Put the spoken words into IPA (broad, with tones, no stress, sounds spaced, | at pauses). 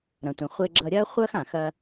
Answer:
ɾ ɐ̃˩ tʷ ɐ̃˩ χʷ e˧ ɡ͡ǁ ʌ˧ ɾʲ ɐː˥ χʷ ɐː˥ x ã˩ x ɐː˧